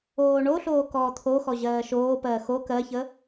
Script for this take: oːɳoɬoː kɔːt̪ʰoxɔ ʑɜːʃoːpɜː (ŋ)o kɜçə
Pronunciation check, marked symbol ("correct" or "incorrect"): incorrect